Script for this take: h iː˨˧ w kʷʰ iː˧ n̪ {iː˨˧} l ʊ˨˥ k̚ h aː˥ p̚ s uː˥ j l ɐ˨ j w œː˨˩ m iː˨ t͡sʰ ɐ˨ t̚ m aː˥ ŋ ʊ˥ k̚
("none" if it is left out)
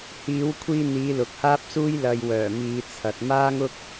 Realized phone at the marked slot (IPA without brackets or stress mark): iː˨˧